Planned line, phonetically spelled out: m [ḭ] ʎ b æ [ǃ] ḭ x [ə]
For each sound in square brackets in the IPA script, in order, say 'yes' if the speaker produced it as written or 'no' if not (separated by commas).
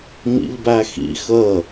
yes, no, yes